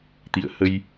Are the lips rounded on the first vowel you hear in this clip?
no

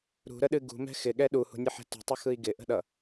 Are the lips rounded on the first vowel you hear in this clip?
yes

